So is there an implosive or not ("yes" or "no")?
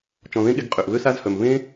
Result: yes